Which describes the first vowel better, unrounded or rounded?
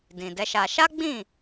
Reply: unrounded